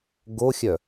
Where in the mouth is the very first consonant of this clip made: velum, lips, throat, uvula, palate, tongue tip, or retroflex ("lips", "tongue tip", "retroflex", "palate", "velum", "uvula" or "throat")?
velum